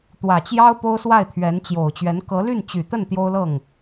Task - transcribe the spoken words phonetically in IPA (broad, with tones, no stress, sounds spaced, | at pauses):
t̪ w ä˨˩ t͡ɕ j ɑ˥ ʊ̯ p o˥ ʊ̯ s w a˥˩ ɪ̯ t̪ʰ ɥ ɛ˧˥ n t͡ɕ j o˨˩ ʊ̯ t͡ɕ ɥ ɛ˧˥ n k ɤ˧˥ l y˥˩ n t͡ɕ y˨˩ t̪ ə˥˩ n t̪ j o˥ ʊ̯ l ɤ˥˩ ŋ